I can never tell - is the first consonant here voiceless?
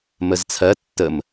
no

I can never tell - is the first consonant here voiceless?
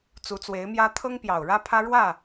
yes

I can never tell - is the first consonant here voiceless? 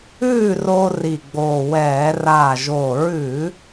no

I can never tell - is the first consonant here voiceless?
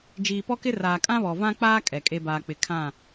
no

